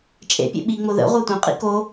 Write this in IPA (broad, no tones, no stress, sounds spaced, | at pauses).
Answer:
t͡ʃʼ ḛ pʲ ḛ ɓ i ŋ͡m o ð ə̰ ʁʷ œ tʷ ĩ qʼ ḭ k o